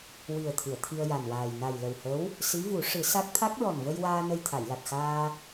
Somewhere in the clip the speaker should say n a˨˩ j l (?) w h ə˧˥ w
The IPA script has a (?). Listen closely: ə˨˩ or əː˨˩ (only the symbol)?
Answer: ə˨˩